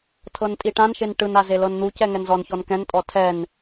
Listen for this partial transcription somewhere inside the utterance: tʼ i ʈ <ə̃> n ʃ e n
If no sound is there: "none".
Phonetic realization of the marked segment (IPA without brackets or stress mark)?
ã